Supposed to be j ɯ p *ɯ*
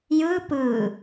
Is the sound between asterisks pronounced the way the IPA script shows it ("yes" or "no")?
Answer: yes